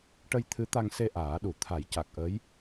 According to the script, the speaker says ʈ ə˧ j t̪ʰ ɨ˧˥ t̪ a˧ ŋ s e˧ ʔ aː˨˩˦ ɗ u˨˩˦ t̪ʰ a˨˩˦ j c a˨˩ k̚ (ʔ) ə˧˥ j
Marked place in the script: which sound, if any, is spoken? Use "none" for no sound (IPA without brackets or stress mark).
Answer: ʔ